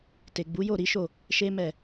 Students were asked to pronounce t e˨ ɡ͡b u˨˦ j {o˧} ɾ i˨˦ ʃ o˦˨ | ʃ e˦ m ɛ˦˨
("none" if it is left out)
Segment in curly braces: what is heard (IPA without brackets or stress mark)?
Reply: o˦˨